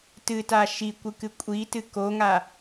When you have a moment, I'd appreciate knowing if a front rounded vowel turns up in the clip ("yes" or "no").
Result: no